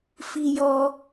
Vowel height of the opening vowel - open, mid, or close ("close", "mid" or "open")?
close